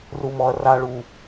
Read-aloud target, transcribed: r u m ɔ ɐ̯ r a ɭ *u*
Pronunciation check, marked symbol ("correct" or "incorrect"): correct